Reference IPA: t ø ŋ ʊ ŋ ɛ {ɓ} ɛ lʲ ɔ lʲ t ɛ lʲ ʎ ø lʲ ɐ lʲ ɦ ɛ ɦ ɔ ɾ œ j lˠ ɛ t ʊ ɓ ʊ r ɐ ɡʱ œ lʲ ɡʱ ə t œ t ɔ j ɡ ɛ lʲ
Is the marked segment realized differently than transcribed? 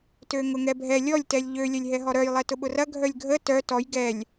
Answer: yes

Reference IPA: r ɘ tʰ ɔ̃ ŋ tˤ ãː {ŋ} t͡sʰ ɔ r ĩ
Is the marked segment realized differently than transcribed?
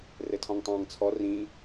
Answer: no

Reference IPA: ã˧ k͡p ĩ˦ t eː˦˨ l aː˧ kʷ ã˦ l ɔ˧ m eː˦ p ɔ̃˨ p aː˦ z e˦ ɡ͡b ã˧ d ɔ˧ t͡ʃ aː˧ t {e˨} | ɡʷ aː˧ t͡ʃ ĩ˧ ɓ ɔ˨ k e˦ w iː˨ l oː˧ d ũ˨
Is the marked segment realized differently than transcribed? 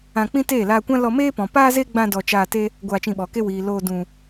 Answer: yes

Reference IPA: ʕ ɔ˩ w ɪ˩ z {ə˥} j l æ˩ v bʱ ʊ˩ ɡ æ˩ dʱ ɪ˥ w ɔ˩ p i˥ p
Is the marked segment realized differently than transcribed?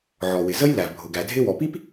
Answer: no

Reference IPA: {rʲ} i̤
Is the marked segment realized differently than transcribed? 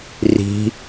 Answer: yes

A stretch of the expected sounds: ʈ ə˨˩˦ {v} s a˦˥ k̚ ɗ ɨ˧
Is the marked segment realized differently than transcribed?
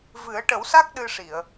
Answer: yes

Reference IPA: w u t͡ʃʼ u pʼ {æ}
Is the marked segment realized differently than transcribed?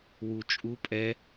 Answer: yes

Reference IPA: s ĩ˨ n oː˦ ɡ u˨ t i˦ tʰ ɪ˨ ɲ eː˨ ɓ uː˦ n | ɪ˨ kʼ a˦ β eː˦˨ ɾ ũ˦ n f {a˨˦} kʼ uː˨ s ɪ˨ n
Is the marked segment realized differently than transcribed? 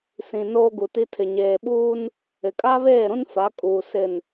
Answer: no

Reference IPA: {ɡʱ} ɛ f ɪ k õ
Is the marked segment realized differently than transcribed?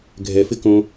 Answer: no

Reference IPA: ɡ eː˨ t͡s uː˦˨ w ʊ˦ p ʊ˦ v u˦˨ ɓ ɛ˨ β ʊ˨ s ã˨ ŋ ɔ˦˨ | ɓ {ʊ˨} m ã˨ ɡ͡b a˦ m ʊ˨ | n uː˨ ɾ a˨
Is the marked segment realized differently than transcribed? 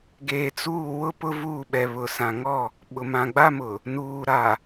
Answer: no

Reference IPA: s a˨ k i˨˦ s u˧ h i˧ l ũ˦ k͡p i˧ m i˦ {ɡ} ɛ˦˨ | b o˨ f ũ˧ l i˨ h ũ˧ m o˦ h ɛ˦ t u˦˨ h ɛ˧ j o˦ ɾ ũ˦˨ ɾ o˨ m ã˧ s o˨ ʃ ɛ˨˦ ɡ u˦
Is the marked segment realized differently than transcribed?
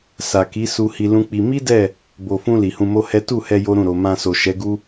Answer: yes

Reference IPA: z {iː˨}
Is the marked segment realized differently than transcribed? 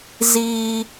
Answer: no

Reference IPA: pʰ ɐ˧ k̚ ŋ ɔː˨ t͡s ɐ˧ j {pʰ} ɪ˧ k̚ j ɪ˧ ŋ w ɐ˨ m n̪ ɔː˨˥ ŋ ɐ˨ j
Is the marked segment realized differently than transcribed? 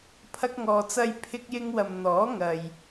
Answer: no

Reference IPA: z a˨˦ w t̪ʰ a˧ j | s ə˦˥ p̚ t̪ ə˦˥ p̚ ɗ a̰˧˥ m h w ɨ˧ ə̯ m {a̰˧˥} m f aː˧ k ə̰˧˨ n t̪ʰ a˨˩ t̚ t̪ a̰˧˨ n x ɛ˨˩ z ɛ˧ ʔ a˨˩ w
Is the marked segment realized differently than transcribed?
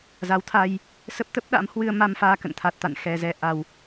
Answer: yes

